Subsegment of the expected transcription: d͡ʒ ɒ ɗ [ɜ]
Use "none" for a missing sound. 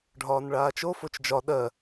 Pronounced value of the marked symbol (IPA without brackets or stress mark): ɜ